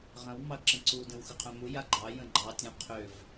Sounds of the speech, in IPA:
ʁə̃w mɑɡǁə̃ǀu də̃wxʏqʰœ̃mu jaɡ͡ǃɑ jə̃ɡ͡ǃɑ tʲũqʰʏv

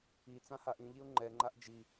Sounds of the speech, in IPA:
i t͡sãhaʔĩʎiʊ̯ ŋ͡ǃɛŋ͡ǃaʔ d͡ʒi

